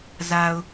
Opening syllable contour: low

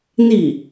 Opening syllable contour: falling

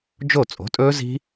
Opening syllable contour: falling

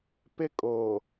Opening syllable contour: high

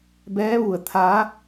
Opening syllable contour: rising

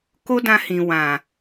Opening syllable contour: high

